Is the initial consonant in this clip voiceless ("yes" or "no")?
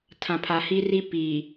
yes